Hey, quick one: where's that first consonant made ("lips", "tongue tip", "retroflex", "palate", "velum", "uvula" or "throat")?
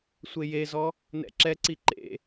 tongue tip